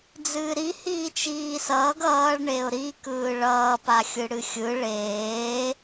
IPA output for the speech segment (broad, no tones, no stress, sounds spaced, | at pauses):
d͡z ɨː ɾ i h iː t͡ʃ iː s ʌː ɡ ʌː ɭ ɳ e ʊ̯ ɾ i k ɯː ɭ ʌː p a xʲ ɯ ɽ ɨ xʲ ɯ ɭ eː